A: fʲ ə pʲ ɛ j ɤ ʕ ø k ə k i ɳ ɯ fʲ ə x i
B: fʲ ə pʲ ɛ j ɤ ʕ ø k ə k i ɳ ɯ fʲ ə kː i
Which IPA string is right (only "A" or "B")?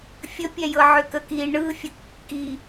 B